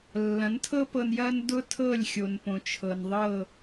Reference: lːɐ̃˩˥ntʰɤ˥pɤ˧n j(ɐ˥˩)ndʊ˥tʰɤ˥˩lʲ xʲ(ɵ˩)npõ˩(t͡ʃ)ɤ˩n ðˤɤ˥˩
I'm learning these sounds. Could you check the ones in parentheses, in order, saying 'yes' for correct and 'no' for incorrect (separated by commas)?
no, no, no